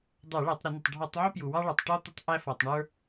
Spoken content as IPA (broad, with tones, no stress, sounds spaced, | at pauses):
dˤ ə˞˧˩˧ ɭ æ˧˩˧ tˤ ɾ ə˧˩˧ n ɪ˩ tˤ ɖʱ ɔ˧˩˧ tˤ ʕ u˥ p j u˩ w ɑ˥ ɭ ʌ˩ tˤ ʈ ɔ˥ t̪ ɪ˥ tˤ ʔ æ˥ f ɔ˩ tˤ ɳ ə˞˥